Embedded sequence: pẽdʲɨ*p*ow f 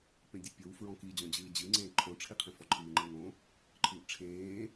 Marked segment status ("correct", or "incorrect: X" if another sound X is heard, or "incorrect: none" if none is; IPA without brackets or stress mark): incorrect: pʲ